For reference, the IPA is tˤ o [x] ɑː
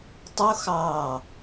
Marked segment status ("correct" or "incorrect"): correct